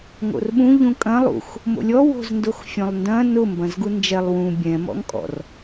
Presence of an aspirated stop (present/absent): absent